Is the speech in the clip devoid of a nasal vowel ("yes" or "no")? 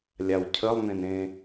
no